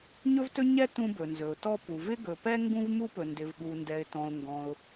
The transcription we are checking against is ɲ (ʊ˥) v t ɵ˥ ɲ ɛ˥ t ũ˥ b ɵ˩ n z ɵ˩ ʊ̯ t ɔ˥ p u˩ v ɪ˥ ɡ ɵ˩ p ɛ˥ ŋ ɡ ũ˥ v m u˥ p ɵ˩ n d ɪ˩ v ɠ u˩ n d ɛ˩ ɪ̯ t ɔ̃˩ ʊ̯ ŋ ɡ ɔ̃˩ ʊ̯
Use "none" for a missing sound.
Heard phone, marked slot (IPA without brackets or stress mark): ɵ˥